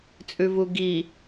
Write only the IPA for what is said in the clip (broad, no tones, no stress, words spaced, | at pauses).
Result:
t͡sʼʉvuɡi